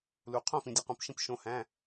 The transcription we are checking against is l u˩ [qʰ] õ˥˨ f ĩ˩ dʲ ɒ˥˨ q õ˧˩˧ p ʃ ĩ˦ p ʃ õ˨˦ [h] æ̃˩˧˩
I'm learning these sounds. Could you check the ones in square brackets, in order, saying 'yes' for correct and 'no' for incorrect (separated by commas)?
yes, yes